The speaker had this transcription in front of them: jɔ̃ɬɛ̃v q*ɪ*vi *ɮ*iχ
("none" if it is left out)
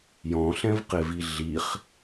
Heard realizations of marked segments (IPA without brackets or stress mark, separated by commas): ɪ, ɮ